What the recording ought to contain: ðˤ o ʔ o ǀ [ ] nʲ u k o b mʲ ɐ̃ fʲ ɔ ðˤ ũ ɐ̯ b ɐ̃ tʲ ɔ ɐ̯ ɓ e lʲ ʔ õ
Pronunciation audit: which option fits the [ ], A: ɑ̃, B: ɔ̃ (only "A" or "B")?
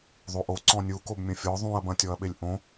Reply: B